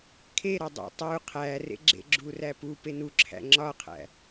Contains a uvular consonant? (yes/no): yes